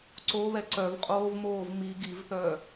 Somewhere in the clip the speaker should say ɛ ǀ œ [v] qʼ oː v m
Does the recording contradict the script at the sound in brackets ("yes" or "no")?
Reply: no